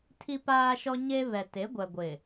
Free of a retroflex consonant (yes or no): yes